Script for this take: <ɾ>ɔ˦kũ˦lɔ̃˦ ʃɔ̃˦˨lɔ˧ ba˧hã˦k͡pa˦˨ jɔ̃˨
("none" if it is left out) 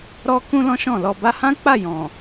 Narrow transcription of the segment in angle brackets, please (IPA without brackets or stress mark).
ɾ